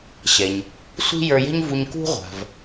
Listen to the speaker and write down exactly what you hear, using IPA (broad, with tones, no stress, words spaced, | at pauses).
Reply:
ɕɛ˩ɲ | sʷi̤˥jə˞˧jɛ̤˥ɲvu˧ɲ kṳ˥ʁʷa̤˩v